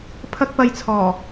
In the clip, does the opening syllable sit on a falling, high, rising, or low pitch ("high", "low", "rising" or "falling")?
high